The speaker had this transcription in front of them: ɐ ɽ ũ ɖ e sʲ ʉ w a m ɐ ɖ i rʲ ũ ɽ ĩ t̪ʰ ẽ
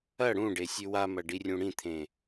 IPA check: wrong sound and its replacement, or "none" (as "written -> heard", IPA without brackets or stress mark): none